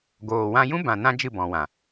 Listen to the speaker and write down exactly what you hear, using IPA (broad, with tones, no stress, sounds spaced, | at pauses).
ɡ oː˨ w ã˧ j ũ˦ b ã˨ n ã˧ d͡ʒ ɨ˦˨ b ɔ̃˨ w ã˨